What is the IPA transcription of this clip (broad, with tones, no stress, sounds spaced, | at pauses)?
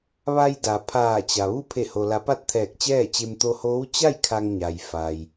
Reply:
ʋ a˧ j d a˩ pʰ aː˧˩ t͡ɕ a˩ ʋ u˥˨ pʰ e˧˩ h o˩ l a˩˧ p a˥˨ t̚ t̪ʰ ɛː˧˩ k̚ t͡ɕ ɛː˥˨ t͡ɕ e˧ m t̪ o˧ h oː˧˥ w t͡ɕ a˥˨ j kʰ a˧ ŋ ɲ a˩ j f a˩ j